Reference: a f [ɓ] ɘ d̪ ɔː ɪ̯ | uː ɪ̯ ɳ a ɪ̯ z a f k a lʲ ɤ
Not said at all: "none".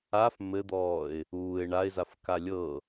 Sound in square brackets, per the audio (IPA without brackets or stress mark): m